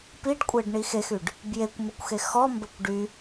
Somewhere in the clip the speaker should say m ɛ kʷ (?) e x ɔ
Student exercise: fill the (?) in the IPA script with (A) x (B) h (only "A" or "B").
A